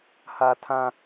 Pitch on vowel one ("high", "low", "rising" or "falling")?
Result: high